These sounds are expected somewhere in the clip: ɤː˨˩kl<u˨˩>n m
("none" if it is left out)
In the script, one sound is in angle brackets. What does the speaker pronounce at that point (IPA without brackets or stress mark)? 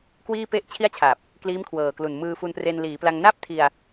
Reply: u˨˩